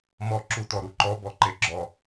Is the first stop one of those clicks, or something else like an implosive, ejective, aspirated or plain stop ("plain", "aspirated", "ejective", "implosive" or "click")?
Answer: click